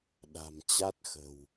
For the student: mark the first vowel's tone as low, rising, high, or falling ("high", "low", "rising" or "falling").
low